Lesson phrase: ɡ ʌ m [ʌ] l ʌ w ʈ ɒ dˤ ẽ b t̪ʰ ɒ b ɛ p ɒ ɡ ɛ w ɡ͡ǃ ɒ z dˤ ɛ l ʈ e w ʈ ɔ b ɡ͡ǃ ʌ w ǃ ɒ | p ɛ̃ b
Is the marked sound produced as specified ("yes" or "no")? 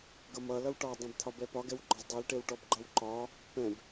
yes